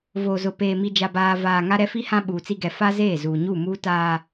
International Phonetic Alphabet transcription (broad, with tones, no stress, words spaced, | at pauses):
voː˨zʊ˨peː˨ mi˨d͡ʒa˨baː˨ vaː˨ ŋa˦ɾɛ˦fi˦ hã˦ɓuː˨t͡si˦ ɡɛ˨fa˦zeː˦˨ zuː˨ ɲuː˦˨muː˦taː˦